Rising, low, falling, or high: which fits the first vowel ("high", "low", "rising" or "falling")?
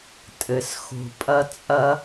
low